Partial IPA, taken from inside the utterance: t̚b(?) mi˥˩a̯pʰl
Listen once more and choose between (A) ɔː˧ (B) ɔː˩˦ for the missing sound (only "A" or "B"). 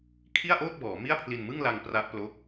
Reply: B